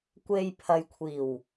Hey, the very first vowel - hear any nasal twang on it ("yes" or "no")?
no